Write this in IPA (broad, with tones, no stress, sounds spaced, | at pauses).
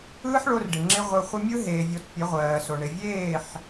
ɯː˦ ħ ɭ o˧ r ɖ ɪ˨ ŋ͡ǁ ɪ˦ ʁʷ ɯ˧ χʷ ɪ˦ mʲ ɯ˦ ɦ eː˨ vʲ o˧ t pʲ ə˨˦ ʁʷ ɜː˨ s o˨ ɳ ɪ˨ vʲ eː˦˨ ħ